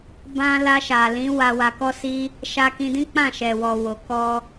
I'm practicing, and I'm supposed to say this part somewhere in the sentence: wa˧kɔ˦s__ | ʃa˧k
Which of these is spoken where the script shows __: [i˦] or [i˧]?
i˦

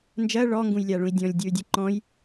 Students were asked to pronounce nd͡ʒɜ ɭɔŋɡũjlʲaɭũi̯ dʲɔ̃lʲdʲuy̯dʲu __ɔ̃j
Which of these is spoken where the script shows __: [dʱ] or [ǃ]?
ǃ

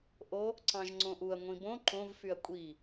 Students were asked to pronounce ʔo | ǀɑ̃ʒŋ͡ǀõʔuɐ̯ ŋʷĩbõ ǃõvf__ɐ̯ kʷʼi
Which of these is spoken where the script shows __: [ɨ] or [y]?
y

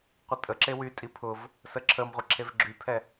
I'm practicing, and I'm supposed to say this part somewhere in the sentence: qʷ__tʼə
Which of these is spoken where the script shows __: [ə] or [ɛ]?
ə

